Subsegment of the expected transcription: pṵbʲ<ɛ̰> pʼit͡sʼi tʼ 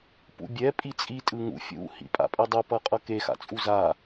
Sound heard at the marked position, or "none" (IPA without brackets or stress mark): ɛ